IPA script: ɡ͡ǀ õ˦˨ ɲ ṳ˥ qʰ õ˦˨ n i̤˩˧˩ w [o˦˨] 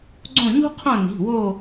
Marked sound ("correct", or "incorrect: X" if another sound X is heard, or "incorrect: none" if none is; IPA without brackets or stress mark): correct